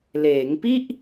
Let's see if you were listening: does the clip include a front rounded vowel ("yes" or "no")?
no